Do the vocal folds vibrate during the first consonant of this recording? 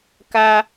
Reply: no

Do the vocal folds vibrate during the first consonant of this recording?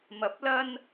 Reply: yes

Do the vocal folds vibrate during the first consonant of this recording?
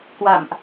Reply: no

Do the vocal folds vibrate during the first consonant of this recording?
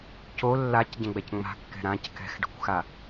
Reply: no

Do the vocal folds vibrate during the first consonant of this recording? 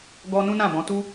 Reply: yes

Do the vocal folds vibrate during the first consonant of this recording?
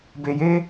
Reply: yes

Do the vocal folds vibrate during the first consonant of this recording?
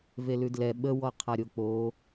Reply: yes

